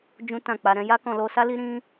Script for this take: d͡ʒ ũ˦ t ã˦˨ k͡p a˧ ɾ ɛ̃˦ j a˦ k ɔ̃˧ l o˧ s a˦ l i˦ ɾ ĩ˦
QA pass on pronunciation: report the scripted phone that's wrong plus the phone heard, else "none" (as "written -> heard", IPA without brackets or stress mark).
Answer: none